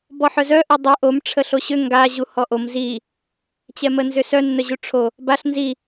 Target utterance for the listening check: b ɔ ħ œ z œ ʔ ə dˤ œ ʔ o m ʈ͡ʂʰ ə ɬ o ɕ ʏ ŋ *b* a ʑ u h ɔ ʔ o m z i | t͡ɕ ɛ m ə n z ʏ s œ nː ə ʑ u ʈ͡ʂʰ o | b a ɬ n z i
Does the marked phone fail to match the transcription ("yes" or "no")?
yes